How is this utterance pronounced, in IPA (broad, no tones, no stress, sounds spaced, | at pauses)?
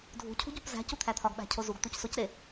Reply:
dʱ ṳ cʰ ṳ ɟ u p z æ̤ c u t̪ʰ æ t̪ʰ ɒ ɡ ɓ æ̤ cʰ o z u ɡ t̪ u c s o c ɾ e